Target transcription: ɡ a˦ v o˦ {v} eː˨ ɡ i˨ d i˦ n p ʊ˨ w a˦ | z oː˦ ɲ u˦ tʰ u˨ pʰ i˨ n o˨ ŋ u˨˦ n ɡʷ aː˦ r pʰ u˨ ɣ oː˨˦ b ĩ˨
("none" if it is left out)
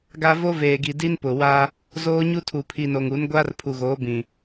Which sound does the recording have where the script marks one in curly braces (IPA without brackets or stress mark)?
v